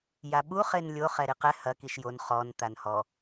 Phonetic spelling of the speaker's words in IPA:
j a ɓ u χ e n lʲ o χ ɛ ɾ i q ɛ h ɐ k i ʃ j o n χ ɔ n t̪ a n h ɔ

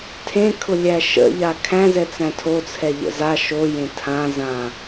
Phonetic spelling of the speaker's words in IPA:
tʰ ẽ kʰ ʊ lʲ æ ʃ ə̰ ʎ a kʰ æ̃ z ɛ t͡s æ̃ tʰ o t͡sʰ ɛ ʎ ə̰ z a ʃ o j ẽ tʰ ã z ã

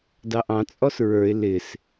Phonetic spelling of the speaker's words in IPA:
d ɑ ʔ ɑ̃ t͡sʼ ɔ s ɹ ə˞ ɪ̯ l ɪ s

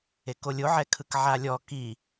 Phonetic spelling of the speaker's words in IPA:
e k o lʲ o ʕ ɛ kʰ ɯ k ʕ a lʲ ɔ k i

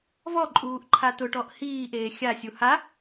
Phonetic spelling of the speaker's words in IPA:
v ɔ ǃʼ uː ʔ ǃʰ a t̪ ʊ ʈ ɔ ʔ h iː ʔ eː xʲ a sʲ u h a

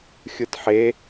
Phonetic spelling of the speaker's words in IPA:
xʲ ɯ t ħ e

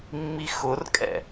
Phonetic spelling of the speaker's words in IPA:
mː i x ʊ r kʼ ɛ̰

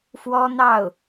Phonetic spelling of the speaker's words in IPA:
f w ɔ˥ n̪ ɑ˥˩ ʊ̯

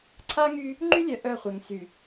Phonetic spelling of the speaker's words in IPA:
ǀʰ a˦ ŋ y˦ | ŋ͡ǃ y˦ lʲ œ˨ ʔ œ˦˨ χʷ ɛ˨ ŋ s y˨

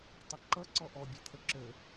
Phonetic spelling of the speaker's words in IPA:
tˤ ʌ ǃ ʌ ǀ ɔ ʔ ɔ bʲ ø t̪ʰ ə ǁ ø

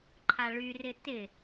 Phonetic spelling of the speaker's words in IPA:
ǃʰ a ɭ y r ɪ t ɪ

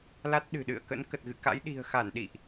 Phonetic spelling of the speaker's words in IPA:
l a˦˥ t̚ ɗ ɨ̤˨˩ ɗ ɨ̰˧˨ ə̯ k ə̰˧˥ n k ə˨˩ t̚ ɣ ɨ̰˧˨ k a̰˧˥ j ɗ i̤˨˩ ə̯ x a˧˩ n ɗ ḭ˧˨ ʔ

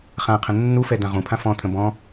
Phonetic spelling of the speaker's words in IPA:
χ ã qʰ ə̃ nː u f ɛ d ã ʁ ũ pʰ ã f ɔ̃ t̪ʰ ə̃ b ɔ̃

